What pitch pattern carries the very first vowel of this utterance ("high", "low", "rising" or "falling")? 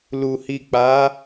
low